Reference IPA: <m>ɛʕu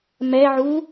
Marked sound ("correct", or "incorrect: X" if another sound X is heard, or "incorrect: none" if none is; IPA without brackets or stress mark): correct